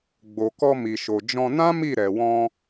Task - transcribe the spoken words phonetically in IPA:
ɡ͡b o˨ k ɔ˧ m i˨ ʃ o˨ d͡ʒ ɔ̃˧ n ã˦ m i˦˨ ɾ ɛ˨ w ɔ̃˧

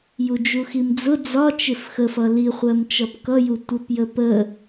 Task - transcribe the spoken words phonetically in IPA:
j u d͡ʒ u x i m d͡z ʊ d͡z ɒ t͡ʃ ɪ f x ə f ʌ l i χʷ ɜ m t͡ʃ ʌ p k ʌ j u tʷ ə p j ə p ə

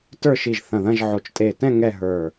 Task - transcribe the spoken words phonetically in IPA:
t ə˞˥˧ ʃ i˧˩ ʒ θ ɐ̃˧˩ ð ɐ̃˥˧ ʒ ʕ o˧˩ t͡ʃ tʼ e˧˩ t ɛ̃˥˧ ŋ ɛ˥˧ ɦ ə˞˧˩

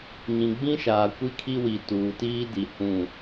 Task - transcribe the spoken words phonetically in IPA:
ɲ ĩ˨ ɡ͡b ĩ˦ ʃ aː˨ kʷ i˦ kʰ i˦ w i˨ t uː˨ t iː˦ d i˨ h ũ˦˨

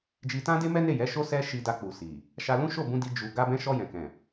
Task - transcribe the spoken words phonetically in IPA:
d͡ʒ i˧ t ã˦ d e˦ m ɛ˦ n e˦˨ j ɛ˨˦ ʃ o˦ s ɛ˦ ʃ i˧ d a˧ k͡p u˨ s i˨ | ʃ a˧ l ũ˦ ʃ o˦˨ b ũ˧ d i˧ d͡ʒ u˨ ɡ a˧ b ɛ̃˧ ʃ ɔ˧ j ɛ̃˨ k ɛ̃˨

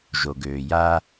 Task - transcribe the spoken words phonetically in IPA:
ʒ o˩ ɡ øː˩ j a˥

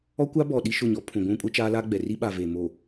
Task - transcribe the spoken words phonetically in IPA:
ɔ˦ kʷ a˦ b ɔ˨ ɗ i˦ ʃ ʊ˦˨ ɲ ɔ˦ pʰ ũ˨ ɡʷ ũ˦ kʼ ʊ˦ t͡ʃ aː˦ l a˦ ɡ͡b ɛ˨ r i˦ ɓ a˨ v e˨ m o˨

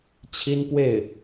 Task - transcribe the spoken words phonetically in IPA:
t͡ɕʰ i˥ n p w e˥˩ ɪ̯

